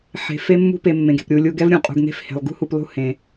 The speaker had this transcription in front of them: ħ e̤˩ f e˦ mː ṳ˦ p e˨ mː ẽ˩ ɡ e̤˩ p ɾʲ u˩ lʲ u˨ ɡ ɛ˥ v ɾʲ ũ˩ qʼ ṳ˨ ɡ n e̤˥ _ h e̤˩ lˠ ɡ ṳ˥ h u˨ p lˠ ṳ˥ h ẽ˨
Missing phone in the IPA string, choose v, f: f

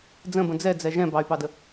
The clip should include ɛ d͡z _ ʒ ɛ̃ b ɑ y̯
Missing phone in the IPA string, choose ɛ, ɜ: ɛ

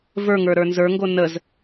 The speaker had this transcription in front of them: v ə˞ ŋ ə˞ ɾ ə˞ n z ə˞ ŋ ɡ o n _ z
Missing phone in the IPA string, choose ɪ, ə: ə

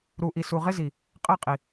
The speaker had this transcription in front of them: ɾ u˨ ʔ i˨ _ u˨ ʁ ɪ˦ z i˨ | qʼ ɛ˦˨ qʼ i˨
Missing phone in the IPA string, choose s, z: s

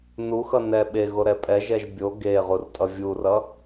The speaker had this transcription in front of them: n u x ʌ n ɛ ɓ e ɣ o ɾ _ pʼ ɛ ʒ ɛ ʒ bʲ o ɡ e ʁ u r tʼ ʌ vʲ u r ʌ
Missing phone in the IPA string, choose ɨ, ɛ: ɛ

